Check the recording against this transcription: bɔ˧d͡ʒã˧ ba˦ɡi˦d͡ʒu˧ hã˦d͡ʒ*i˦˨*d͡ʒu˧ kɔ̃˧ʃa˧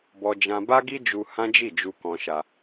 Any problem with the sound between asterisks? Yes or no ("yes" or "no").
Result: no